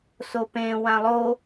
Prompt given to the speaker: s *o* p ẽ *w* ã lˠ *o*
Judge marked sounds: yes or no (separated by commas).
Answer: yes, yes, yes